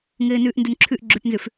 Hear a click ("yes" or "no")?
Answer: yes